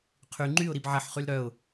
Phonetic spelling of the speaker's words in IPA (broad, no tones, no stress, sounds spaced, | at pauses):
qʰ y ŋ͡ǃ y ʊ̯ ɾ i b ʕ ɐ ħ χ y l ɾ œ ʊ̯